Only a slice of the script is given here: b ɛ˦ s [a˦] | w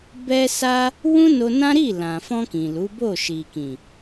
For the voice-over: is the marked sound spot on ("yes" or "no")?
yes